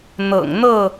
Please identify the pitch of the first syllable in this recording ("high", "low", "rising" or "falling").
low